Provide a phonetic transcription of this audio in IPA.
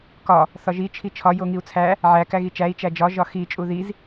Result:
k ɒ | θ ɒ ʒ i t͡ʃʰ i t͡ʃʰ ɒ j o ŋ i u̯ t͡sʰ æ | ʕ æ k æ ɣ i t͡ʃ æ i̯ t͡ʃ æ d͡ʒ ɒ ʒ ɒ x i t͡ʃʼ u ð i z

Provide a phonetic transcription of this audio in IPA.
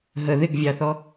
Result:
ɦ ə ð ɪ ɡ vʲ ɑ θ ɔ

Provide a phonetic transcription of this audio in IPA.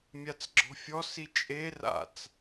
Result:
mʲ a t͡s ɡ͡ǁ ɔ̤ fʲ ɔ s i t͡ʃʼ e r a̰ t͡s

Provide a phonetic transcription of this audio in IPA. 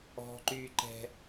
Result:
ɔ̤˦ ǃ yː˦ ǃ ɛ̤˦

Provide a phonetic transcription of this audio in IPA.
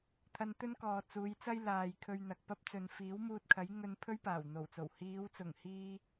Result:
t̪ʰ ɐ˧ n t̪ ɵ˥ n k ɔː˨ t͡s uː˨˧ j t͡s ɐ˥ j l aː˨ j kʰ ɵ˧ ɥ n̪ ɐ˨ k̚ p ɐ˧ p̚ t͡s ɵ˨ n f iː˨˥ w m uː˧ t̚ kʰ ɐ˨˥ j ŋ ɵ˧ n pʰ ɵ˥ ɥ p aː˨˩ w n̪ o˨˩ w t͡s o˨˩ w h iː˨˧ w t͡s ʊ˨˩ ŋ h iː˧

